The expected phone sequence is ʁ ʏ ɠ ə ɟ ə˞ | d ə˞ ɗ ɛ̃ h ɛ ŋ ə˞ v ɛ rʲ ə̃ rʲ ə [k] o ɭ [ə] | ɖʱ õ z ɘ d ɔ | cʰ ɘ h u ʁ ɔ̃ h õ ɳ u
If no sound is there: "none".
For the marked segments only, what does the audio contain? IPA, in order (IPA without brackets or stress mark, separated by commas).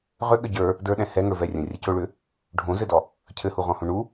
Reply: c, ʏ